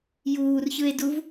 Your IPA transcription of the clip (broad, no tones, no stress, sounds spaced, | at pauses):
j uː r ç ɯ e̯ d u v